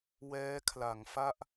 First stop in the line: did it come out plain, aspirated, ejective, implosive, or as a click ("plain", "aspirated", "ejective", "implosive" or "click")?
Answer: aspirated